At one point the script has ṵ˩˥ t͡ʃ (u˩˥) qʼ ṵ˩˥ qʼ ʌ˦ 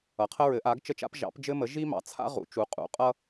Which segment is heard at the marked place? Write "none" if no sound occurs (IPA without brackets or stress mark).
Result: u˩˥